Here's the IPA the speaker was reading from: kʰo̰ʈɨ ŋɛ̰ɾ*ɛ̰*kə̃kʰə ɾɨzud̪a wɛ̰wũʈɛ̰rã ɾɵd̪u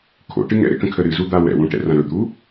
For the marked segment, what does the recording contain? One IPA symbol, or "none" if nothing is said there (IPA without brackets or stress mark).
ɛ̰